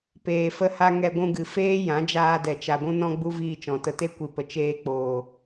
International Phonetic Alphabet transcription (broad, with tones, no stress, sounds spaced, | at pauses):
p eː˨ f ə˧ h a˧ ŋ ɛ˧ ɡʷ ũ˧ ɡ ɨ˨ f eː˦ j ã˨˦ d͡ʒ aː˧ d ɛ˨ t͡ʃ a˨ ɡʷ ũ˧ n ɔ̃˧ ɡ͡b u˧ v iː˧ t͡ʃ ɔ̃˨ t ə˧ t e˦ kʷ i˨ p ə˨ t͡ʃ eː˧ k͡p oː˨